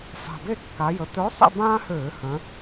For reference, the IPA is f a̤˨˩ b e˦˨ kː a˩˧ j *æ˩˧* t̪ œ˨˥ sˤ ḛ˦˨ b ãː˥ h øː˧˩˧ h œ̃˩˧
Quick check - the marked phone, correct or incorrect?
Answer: incorrect: ə˩˧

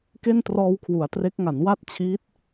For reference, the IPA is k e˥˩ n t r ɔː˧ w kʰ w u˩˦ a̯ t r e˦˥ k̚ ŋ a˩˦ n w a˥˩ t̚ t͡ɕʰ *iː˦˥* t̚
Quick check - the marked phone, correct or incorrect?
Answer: correct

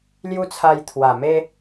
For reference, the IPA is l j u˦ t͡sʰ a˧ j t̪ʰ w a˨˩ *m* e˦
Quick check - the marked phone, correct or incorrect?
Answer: correct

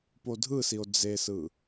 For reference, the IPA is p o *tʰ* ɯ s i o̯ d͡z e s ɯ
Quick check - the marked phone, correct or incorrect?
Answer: incorrect: dʱ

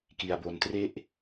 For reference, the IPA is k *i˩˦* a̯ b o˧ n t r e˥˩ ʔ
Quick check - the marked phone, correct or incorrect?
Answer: incorrect: i˧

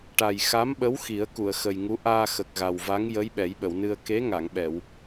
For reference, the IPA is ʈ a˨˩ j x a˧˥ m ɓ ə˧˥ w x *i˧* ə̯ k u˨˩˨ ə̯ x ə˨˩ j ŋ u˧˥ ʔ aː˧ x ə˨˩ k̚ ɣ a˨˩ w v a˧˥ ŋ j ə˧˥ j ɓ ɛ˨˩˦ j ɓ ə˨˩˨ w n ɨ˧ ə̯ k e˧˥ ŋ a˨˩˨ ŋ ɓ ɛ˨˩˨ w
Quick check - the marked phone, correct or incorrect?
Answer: incorrect: i˨˩˦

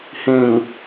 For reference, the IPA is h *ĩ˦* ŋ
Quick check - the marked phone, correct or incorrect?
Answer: incorrect: ĩ˨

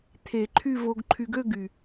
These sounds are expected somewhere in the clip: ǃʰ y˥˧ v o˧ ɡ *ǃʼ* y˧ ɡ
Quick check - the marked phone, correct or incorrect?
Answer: incorrect: ǃʰ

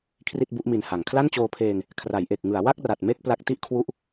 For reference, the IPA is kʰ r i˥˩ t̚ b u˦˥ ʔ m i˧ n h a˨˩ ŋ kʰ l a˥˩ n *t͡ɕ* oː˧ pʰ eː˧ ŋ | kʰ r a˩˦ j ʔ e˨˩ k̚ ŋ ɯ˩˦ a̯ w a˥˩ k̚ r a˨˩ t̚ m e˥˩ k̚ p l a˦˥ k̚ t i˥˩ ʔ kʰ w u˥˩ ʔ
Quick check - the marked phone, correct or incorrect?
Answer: correct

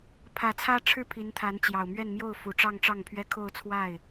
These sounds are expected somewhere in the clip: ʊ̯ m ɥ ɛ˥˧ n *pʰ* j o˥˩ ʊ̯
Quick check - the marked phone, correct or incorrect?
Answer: incorrect: m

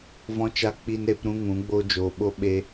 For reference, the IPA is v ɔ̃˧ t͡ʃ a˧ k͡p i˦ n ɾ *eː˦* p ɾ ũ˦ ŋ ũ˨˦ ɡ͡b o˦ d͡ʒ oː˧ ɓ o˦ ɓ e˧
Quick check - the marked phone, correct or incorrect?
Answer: incorrect: e˦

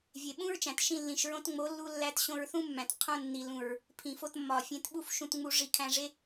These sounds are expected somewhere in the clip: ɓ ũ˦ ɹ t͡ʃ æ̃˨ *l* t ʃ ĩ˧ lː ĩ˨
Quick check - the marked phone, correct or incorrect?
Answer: incorrect: none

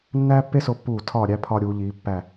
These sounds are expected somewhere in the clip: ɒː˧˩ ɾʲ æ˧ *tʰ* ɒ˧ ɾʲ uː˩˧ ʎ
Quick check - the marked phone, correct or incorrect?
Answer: incorrect: pʰ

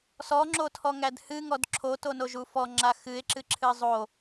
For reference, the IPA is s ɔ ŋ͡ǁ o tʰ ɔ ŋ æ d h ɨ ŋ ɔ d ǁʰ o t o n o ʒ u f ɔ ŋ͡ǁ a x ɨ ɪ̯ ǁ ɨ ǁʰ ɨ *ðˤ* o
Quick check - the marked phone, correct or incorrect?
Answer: incorrect: zˤ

